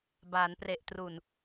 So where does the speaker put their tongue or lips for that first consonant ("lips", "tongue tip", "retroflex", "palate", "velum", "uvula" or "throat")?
lips